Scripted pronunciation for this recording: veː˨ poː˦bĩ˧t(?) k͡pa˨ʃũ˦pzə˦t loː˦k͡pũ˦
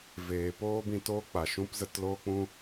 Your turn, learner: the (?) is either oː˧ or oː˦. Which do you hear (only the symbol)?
oː˦